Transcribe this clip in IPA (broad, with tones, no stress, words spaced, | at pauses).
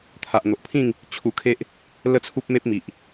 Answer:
t̪ʰa˨ʔn̪o˨ʔpʰĩ˥˧ŋ | t͡ɕʰu˧kʰe˦ʔ | lə˦t͡sʰu˦p̚me˦p̚mi˨ʔ